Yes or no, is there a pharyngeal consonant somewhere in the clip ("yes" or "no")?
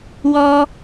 no